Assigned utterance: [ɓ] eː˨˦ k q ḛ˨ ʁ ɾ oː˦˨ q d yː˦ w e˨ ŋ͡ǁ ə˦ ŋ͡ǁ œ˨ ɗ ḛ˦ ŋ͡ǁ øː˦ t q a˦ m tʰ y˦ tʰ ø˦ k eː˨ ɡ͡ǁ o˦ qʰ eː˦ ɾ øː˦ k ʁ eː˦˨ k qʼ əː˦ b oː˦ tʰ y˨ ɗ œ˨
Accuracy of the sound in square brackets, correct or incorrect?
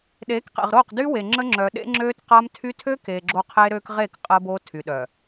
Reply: incorrect: ɗ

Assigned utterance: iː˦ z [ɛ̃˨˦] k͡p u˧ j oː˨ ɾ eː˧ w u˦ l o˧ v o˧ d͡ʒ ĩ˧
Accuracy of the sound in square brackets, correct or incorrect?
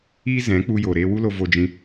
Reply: correct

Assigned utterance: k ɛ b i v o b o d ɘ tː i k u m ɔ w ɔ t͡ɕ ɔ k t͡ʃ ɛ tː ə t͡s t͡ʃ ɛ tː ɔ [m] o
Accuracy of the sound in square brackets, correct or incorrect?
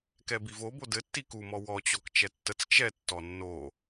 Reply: incorrect: nː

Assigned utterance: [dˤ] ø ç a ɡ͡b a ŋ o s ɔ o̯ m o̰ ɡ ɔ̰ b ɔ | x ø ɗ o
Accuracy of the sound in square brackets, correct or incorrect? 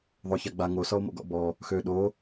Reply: incorrect: ðˤ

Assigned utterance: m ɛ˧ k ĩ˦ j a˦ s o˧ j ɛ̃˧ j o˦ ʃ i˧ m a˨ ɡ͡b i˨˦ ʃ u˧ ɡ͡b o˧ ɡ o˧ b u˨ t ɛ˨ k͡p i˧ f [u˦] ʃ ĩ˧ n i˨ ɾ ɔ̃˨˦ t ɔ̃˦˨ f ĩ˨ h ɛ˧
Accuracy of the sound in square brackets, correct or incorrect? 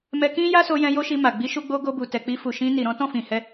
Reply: incorrect: u˨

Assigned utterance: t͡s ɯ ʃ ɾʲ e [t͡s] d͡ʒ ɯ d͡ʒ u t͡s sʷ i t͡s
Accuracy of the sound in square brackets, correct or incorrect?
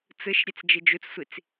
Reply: correct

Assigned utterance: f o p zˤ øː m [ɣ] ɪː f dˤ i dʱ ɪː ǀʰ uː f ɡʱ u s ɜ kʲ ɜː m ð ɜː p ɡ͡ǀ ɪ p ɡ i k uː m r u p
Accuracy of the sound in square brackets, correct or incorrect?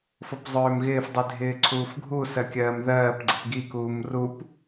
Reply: correct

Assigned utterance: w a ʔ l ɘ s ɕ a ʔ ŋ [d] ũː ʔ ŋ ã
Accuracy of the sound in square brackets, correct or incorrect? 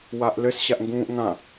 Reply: incorrect: ɡ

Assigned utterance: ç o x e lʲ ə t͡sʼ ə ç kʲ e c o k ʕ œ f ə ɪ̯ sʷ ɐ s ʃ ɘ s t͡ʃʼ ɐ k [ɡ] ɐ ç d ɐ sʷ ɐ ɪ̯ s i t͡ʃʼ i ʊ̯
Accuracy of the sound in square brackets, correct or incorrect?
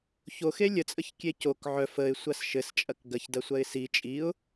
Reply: correct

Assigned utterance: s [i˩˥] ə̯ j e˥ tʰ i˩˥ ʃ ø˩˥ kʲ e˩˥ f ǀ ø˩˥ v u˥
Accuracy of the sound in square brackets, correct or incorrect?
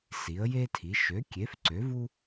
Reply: correct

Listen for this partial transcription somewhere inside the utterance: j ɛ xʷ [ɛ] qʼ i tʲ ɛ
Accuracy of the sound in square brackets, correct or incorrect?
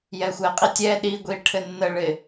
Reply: correct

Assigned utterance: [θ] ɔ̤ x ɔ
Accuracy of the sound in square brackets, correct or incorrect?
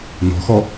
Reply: incorrect: n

